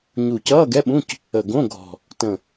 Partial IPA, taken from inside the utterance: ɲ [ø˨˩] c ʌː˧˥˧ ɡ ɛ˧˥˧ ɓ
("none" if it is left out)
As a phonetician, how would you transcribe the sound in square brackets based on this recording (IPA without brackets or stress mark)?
u˨˩